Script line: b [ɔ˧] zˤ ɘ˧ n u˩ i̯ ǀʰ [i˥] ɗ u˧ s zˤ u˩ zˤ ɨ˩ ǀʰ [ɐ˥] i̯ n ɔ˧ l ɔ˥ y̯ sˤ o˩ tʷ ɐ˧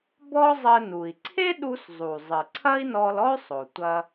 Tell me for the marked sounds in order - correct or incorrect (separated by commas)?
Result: incorrect, incorrect, correct